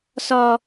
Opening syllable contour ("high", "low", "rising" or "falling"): high